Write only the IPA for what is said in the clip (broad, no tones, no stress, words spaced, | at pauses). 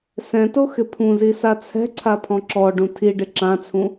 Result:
sɛ̃to xɪpʰũzi sat͡sʰɛ̤ǀʰa pʰɔ̃ǁɔɖũ tʰiɖɪ ǁãt͡sʰũ